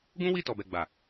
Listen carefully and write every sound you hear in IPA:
ɡ ũ˦ w i˦˨ t ɔ˨ b ɛ˨ ɡ͡b a˨

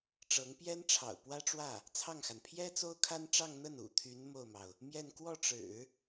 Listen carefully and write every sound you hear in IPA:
ʈ͡ʂ ɤ˧˥ ŋ p j ɛ˥ n ʈ͡ʂʰ ɑ̰˨˩ ʊ̯ p w ä˥ ʈ͡ʂ w ä˥˩ | t͡sʰ ɑ˥˩ ŋ x a˩ n pʰ j ɛ˥ t͡s o˥ ʊ̯ kʰ a˥ n ʈ͡ʂ ɑ˥˧ ŋ n̪ ə˥˩ n ṵ˨˩ t̪ʰ y˧˥ n m o˥˩ ʊ̯ m ɑ˩ ʊ̯ | m j ɛ˥˧ n k w ɔ˥˩ ʈ͡ʂ ɻ̩˨˩˦

